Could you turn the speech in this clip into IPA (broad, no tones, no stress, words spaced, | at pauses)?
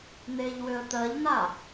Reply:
n̪eʎwʏə̯ t̪ɜʎn̪a